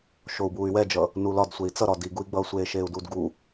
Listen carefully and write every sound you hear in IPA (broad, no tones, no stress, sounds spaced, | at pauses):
ʃ o u̯ b uː y̯ w ɛ d͡ʒ ʌ | n u l ɒ d sʷ e i̯ t͡s ʌ ɾ ɒ d i ɡ u i̯ ɡ͡b ʌː sʷ eː ʃ eː u̯ d uː d ɡ u